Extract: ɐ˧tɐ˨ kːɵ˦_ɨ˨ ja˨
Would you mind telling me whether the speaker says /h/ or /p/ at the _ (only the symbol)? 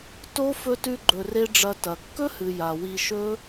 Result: h